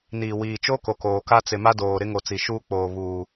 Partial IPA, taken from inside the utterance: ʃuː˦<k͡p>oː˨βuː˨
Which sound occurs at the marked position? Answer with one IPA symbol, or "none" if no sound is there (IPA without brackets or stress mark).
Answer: k͡p